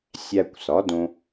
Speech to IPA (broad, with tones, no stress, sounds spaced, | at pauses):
sʲ æ˧ kʷ s ɒ˩˥ d õ˧